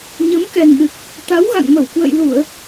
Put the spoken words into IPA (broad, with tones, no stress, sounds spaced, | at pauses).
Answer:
ɲ ə˨˦ m k ɛ˨˩ ŋ ɗ ɨ˨˩ k̚ | t̪ a˨˦ w ɣ a̰˧˨ ŋ m ə˧˩ w k w ə̰˧˨ j l u˧˩˨ ə̯